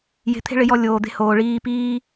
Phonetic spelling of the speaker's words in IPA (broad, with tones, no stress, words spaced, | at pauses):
je̤˧t̪ʰe̤˦ɭɪ˨˦jɔ˧ lʲoː˨d̪e̤˧hoː˨ ɭiː˧piː˦